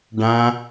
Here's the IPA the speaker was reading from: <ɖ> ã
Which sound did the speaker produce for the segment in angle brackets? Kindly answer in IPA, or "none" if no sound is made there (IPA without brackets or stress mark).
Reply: ɖ